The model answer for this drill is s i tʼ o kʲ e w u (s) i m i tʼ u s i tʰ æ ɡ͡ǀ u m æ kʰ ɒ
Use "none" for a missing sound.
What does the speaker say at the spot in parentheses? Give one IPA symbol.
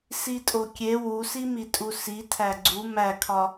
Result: s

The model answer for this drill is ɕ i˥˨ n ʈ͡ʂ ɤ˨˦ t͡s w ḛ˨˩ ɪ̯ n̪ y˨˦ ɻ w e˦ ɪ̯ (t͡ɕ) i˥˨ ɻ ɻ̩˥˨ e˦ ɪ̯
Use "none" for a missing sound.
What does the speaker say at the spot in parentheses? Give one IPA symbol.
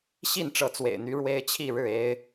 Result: t͡ɕʰ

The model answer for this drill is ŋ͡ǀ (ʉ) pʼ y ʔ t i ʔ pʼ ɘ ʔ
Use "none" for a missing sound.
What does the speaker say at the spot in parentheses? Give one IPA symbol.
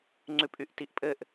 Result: ʉ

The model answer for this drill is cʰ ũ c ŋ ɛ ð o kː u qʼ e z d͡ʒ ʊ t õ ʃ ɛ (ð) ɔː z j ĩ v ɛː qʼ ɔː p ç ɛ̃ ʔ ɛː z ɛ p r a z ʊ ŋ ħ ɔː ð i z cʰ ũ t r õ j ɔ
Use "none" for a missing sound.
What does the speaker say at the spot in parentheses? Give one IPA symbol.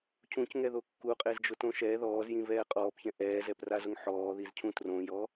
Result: ð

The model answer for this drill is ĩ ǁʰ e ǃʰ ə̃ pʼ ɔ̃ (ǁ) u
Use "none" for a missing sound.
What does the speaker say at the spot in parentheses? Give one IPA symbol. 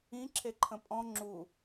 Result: ŋ͡ǁ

